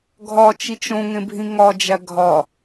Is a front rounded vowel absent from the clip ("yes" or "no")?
yes